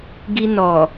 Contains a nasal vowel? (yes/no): no